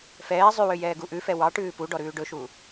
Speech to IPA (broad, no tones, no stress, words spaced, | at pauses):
fɛː zˤywø jɛːɡuʔʉfɛ wɑ ʈʉːpuɖɔ ɾʉːɖɵʃu